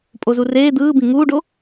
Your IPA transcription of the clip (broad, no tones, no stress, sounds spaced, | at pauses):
pʼ o z u r eː d̪ ɯː b ĩ ŋ uː ɖ o